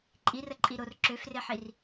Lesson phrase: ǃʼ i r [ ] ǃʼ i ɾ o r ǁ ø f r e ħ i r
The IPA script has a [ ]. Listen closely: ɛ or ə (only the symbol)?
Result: ə